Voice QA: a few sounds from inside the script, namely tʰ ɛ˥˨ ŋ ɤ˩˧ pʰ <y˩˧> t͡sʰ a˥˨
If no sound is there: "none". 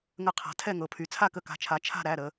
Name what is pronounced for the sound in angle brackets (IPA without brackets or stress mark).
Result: y˩˧